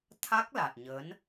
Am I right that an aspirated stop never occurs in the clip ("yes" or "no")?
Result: no